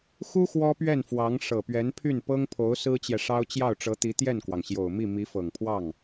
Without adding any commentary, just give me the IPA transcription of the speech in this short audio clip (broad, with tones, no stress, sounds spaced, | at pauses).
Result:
x u˥ x w ɔ˥ p ɥ ɛ˥˩ n f w ɑ˧˥ ŋ ʂ ɤ˨˩ p ɥ ɛ˧˥ n pʰ y˥˩ n p ɤ˥ ŋ pʰ o˧˥ ʊ̯ s ɹ̩˥ t͡ɕ j ɛ˨ ʂ ɑ˥ ʊ̯ t͡ɕ j ɑ˥˩ ʊ̯ ʈ͡ʂ ɤ˧˥ t̪ i˧˥ t̪ j ɛ˥˩ n k w ɑ˩ ŋ ɕ j o˨˩ ʊ̯ m i˥˩ m i˧˥ f ɤ˨˩ ŋ pʰ w ɑ˥˩ ŋ